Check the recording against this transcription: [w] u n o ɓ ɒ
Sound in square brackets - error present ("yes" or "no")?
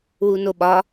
no